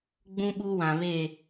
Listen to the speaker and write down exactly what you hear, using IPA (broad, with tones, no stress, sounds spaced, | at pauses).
ɡ͡b ũ˦ ɓ u˦ w ã˨ β e˦˨